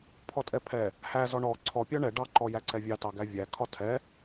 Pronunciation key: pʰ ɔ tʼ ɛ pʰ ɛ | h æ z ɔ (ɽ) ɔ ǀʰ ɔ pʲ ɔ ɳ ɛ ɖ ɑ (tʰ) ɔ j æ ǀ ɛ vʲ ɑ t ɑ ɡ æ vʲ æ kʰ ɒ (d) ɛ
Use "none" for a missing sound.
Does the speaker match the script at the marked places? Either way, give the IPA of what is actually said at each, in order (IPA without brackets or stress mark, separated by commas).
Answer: ɳ, ǃ, tʰ